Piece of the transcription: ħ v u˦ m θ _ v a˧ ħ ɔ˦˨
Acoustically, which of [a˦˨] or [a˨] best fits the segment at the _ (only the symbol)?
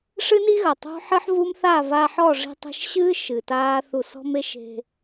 a˦˨